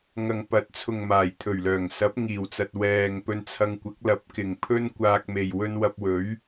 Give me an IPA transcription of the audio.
ŋ ɐ˨ ŋ p ɐ˨˥ t̚ t͡sʰ ʊ˨ ŋ m aː˨˩ j t̪ʰ ɵ˨˩ ɥ l œː˨˩ ŋ s ɐ˨˥ p̚ ŋ iː˨˩ w t͡s ɐ˨ t̚ w ɛː˨ ŋ p ɵ˧ n t͡sʰ ɐ˧ ŋ kʷ ɐ˨˥ k̚ l ɐ˨˥ p̚ k ɪ˨˩ ŋ pʰ ɵ˥ n kʷ aː˧ k̚ m e˨ j w ɵ˥ n w ɐ˧ p̚ w ɵ˨˥ ɥ

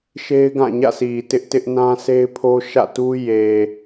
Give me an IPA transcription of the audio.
ʃ e˦ ɪ̯ ɡ ã˦˨ ɲ ä̰˦˨ s i˨ t ɪ˦ ʔ t ɪ˦ ʔ n ã˦ s e˦ ɪ̯ pʰ o˦ ʃ ä̰˦˨ t u˦ j e˨

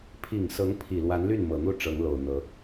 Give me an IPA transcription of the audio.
pʰ i˨˩ ŋ s ɤ˧˥ ŋ pʰ i˨˩ l w a˧˥ n l y˥˩ n m ɤ˨˩ n̪ u˥˩ ʈ͡ʂ ɤ˧˥ ŋ l o˨˩ ʊ̯ n̪ ɤ˧˥

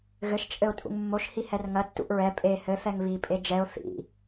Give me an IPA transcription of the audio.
ɣ ɘ ʃ t͡ʃʼ ɘ ʊ̯ tʼ ṵ ŋ mː o ʃ h i h ɛ r ŋ ɐ tː ṵ ʔ ɹ ɛ pʼ e h ɘ θ ɛ ŋ β i pʼ e d͡ʒ ɛ ʊ̯ θ ḭ

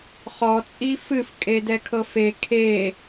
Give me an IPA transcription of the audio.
χ ɔ t͡sʼ i f ɨ f kʼ e d ɛ kʰ ɤ f e kʰ e

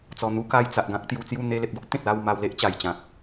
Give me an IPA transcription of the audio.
t͡s ɔ˨˩ n̪ u˧ k a˧ j t͡s a˨ ʔ ɡ ã˦ k̚ t̪ j u˧ t͡s j u˥˧ n̪ e˧ l e˨ p̚ ɡ o˦ ʔ t̪ ẽ˨ t̚ l a˥˧ w m a˧ w l e˦ ʔ t͡ɕ a˨˩ j t͡ɕ ã˨ k̚

